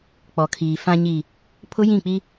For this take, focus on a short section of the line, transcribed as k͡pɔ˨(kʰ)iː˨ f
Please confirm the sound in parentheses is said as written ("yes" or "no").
yes